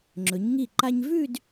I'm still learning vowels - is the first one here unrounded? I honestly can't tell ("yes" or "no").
no